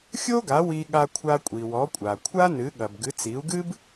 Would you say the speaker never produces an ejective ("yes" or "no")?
no